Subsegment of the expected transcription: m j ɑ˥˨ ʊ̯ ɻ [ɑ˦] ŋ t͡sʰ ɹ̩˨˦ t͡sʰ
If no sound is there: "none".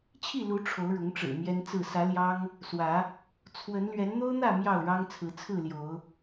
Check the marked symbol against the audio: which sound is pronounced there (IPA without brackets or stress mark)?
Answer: ɑ˦